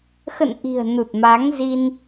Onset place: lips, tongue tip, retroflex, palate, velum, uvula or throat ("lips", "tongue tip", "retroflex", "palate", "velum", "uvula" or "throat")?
velum